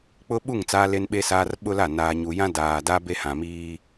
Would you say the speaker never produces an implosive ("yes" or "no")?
no